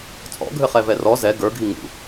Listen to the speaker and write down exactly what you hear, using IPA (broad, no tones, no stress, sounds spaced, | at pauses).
t͡sʼ ɔ̰ ɡʱ ɘ χ ɛ v ɛ r ɔ z ɛ ɡ ə˞ ɡʱ i ŋ ṵ